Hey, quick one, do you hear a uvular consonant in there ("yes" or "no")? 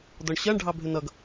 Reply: no